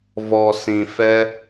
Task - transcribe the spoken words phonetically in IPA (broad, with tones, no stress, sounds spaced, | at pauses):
v ɔ˨ s ĩ˨ f ɛ˧